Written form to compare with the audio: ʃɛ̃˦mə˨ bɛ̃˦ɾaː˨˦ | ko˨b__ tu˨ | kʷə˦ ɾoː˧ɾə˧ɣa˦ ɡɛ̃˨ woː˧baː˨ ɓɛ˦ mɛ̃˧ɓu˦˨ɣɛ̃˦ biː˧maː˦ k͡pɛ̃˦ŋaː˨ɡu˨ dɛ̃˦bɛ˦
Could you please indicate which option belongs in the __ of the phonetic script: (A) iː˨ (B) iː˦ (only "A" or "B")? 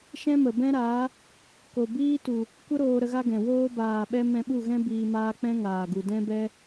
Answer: B